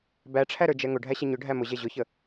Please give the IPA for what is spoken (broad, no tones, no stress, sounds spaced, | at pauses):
b æ ʈ͡ʂʰ æ ɾ ə˞ d͡ʒ ɛ ŋ ʊ ɖʱ æ ɕ ɛ ɲ ʊ ɖʱ æ m ʊ ʑ ɛ ʑ ʊ ç ə